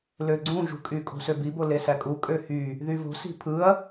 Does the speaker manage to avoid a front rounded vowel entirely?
no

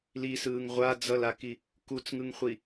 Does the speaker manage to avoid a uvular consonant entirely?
no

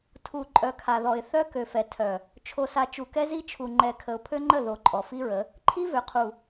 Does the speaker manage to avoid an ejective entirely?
no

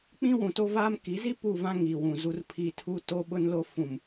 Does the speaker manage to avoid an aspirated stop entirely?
no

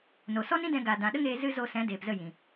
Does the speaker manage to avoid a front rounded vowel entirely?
yes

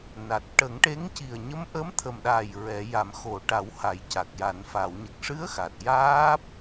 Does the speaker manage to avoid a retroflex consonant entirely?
no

